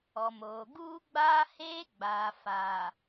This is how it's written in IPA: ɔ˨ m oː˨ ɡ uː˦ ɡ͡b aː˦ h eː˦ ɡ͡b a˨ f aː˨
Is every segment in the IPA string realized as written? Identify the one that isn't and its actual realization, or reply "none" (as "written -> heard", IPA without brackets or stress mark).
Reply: a˨ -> aː˨